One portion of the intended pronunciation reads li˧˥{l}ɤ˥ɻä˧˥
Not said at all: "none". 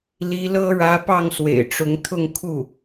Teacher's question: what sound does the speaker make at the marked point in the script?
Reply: l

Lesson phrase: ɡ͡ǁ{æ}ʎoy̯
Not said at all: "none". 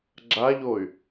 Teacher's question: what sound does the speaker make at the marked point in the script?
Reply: a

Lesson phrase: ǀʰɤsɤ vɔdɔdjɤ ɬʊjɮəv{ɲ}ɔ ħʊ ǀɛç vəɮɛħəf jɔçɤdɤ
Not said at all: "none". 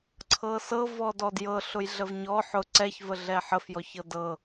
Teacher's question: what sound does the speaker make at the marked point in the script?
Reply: ɲ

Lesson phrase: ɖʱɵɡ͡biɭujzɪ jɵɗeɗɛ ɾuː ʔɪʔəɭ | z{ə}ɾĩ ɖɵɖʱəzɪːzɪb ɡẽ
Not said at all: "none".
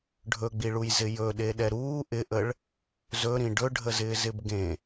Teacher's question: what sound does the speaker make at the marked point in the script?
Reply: ɵ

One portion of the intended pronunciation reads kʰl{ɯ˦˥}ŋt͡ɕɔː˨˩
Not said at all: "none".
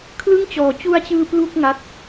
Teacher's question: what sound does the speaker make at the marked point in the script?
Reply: ɯ˥˩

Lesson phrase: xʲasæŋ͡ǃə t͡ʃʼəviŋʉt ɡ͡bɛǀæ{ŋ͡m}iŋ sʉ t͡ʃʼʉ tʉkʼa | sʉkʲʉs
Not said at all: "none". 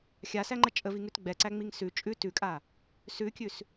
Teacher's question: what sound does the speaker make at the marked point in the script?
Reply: ŋ͡m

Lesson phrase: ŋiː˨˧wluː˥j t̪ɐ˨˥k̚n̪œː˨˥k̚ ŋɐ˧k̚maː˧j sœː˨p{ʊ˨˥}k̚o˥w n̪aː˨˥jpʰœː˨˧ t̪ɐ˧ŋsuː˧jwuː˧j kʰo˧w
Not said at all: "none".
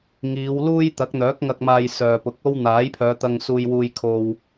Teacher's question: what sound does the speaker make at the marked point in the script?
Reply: ʊ˨˥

